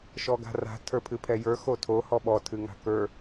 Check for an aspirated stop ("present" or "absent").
present